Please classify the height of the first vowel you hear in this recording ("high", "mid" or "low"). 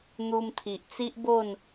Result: high